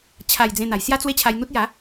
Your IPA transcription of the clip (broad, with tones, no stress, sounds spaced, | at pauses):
t͡ɕʰ a˨˩ j d͡z ẽ˧ n̪ a˨˩ j s j a˦ t͡s w e˦ t͡ɕʰ a˧ j n̪ u˦ t̚ j a˨˦